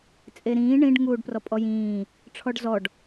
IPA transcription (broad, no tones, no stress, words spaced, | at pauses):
t͡sʼeɾĩː ɳĩɖŋuːɖ prɔpʼɔjĩː | ʈ͡ʂʰɔɖzɔɖ